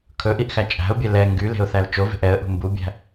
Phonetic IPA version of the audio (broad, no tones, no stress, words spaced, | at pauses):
kʰɵʔiʔxæ t͡ʃʼæ̤ʊ̯bʲɛ lɛ ŋɡyle̤ʊ̯θæl t͡ʃove̤ʔ ɛə̯ʔṳ mbubʲæ̤